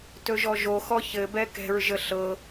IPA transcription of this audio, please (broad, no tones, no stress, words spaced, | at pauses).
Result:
tɵʒɔʒoxɔ çɘ bɛkɛ̤ɹʒə ɬɤ